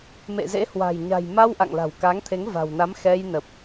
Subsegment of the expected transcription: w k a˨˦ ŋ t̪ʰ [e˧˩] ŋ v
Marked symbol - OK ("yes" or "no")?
no